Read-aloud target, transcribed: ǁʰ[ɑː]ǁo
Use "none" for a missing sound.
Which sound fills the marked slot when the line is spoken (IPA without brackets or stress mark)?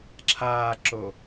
aː